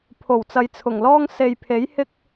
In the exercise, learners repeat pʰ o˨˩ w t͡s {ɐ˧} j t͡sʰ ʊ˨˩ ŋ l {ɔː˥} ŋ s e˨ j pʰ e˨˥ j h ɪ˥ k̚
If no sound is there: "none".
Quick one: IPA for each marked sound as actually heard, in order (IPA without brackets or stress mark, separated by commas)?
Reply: ɐ˨˧, ɔː˥